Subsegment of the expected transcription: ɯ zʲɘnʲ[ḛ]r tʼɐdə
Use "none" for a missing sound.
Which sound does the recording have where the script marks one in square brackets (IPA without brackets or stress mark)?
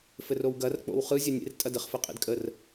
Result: ḛ